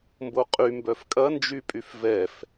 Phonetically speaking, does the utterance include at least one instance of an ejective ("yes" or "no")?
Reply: yes